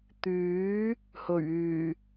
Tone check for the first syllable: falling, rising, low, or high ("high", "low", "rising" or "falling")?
rising